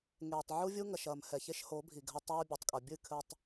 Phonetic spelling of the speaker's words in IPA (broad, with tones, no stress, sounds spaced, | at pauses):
ŋ eː˨ tˤ ʕ u˦ vʲ u˦ ŋ ɐ˨ ʃ ɐː˨ m h ɛ˨ ç e˦ ʃ h o˨˦ bʱ i˨ ɡʱ ɐ˦ tˤ ɐː˦ bʲ o˨ tˤ kʼ ɐ˨ bʲ ɨ˦˨ kʰ ɘ˨ tˤ